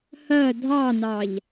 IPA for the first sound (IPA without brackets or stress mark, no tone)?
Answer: h